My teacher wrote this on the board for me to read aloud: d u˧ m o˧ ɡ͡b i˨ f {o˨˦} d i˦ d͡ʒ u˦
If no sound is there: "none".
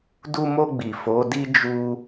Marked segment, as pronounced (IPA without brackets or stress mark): o˨˦